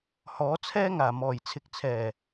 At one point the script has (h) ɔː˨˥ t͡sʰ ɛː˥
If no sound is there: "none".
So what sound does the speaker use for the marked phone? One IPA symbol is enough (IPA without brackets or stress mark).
h